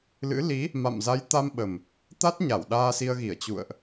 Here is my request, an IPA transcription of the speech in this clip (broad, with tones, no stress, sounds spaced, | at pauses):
l ɨ̰˧˥ l i˨˦ | m a̰˧˨ m z a˨˦ j t̪ a˧ m ɓ ə˨˩ m | t̪ a˦˥ t̚ ɲ a˧˩ w ɗ aː˧ s i˧ ə̯ ɣ i˧˩ ə̯ t͡ɕ ṵ˧˨ ə̯ ʔ